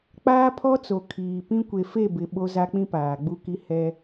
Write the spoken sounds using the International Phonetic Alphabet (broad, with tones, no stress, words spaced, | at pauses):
k͡paː˦pʰɔ˦t͡so˨ kʰiː˨pĩ˦ kʷe˨fe˦˨bɪ˨ ɓo˦za˦k͡pĩ˦ paː˨ɡ͡bu˦ki˦ hɛ˦